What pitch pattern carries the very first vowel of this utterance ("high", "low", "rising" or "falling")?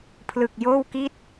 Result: low